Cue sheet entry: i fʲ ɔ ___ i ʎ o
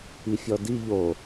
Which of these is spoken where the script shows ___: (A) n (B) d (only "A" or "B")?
B